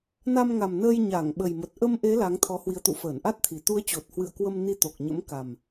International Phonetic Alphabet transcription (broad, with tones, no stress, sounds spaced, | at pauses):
n a˧ m ŋ a˨˩ m n əː˧ j ɲ a˧˩ ŋ ɓ ə˨˩ j m ə˨˩ t̚ ʔ ə˧ m ʔ e˨˦ l a˨˦ ŋ t̪ʰ ɔ˨˦ h w i˨˦ ə̯ t̪ ṵ˧˨ f əː˧˩ n ʔ a˦˥ t̚ t̪ʰ i˨˩ t̪ u˨˦ ə̯ t͡ɕ o˨˩ t̚ h w ɨ̰˧˨ ə̯ k w ə˧ m n i˧ t̪ o˨˩ k̚ ɲ ə̰˧˥ m k a˨˩ m